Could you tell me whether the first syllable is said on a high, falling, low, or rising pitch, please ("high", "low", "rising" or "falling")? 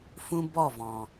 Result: high